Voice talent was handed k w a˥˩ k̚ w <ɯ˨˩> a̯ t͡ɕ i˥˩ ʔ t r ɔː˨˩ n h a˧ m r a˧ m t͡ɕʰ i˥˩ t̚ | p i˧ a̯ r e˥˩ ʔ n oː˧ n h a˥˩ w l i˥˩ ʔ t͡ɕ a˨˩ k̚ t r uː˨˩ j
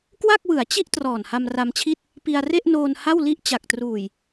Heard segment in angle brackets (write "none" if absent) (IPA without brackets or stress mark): ɯ˩˦